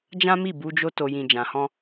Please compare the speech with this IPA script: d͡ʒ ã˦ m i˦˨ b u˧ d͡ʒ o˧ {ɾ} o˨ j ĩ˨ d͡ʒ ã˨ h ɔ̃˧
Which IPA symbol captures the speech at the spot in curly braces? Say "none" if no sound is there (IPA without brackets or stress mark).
t